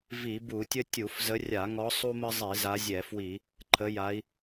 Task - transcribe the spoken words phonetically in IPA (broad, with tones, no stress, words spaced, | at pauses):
vi˧˩˧bu˧˩˧tʲə˥ tʲu˧˩˧fzə˨˦rʲa˧˩˧ŋɔ˨˦ sˤu˥mə˥ zˤi˧˩˧za˨˦zʲɛ˧˩˧fwi˧˩˧ | ǃʰə˨˦ja˨˦i̯